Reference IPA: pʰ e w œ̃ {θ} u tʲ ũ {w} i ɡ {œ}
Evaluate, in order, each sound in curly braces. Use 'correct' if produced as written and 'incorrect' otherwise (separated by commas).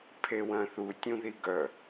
correct, incorrect, correct